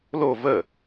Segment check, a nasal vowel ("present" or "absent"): absent